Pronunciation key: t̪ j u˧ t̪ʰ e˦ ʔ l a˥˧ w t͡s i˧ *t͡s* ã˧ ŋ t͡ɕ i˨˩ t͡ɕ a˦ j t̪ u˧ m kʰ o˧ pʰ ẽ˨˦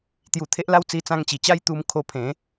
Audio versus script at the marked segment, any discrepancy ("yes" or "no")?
no